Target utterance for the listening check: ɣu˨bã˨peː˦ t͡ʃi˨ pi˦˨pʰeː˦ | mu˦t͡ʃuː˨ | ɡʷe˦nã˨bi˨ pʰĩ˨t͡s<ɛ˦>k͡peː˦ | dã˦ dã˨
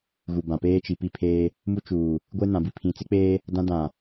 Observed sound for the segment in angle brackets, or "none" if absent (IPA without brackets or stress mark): ɪ˦